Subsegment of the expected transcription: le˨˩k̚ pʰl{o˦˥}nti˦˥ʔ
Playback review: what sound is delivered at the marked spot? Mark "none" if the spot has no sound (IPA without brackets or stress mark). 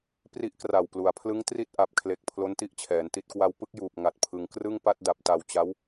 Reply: o˦˥